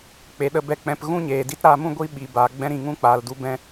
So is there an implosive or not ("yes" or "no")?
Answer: yes